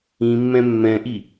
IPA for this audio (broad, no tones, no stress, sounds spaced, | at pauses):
ĩ mː ɛ̃ mː ɛ̃ ʔ i